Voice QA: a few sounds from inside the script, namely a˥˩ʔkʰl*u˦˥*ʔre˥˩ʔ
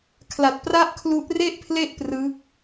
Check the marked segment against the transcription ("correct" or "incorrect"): correct